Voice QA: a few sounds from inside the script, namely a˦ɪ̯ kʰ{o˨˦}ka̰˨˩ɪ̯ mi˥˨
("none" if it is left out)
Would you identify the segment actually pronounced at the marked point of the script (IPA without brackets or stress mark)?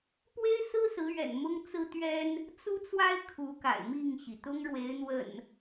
u˨˦